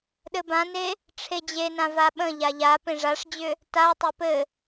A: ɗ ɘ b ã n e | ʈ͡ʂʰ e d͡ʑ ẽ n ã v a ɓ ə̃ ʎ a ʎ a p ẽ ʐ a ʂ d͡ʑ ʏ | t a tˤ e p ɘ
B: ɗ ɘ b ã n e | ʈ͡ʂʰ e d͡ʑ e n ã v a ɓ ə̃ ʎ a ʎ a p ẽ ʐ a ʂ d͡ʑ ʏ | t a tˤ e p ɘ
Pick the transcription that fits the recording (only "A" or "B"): B